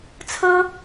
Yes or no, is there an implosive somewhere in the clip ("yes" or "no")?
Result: no